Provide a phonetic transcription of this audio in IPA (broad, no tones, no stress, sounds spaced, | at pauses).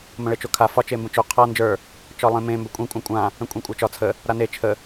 m ə̃ ɭ e t͡ʃ o kʰ a f ɒ t͡ʃ e m b ə̃ t͡ʃ o qʰ a n d͡ʒ ə˞ | t͡ʃ ɒ lˠ ẽ m ẽ m b ɵ kʷʼ ẽ kʷʼ ã kʷʼ ã | ə̃ kʷʼ ẽ kʷʼ a t͡ʃ ɒ t͡sʰ ə | ɾ a n e t͡ʃʰ ə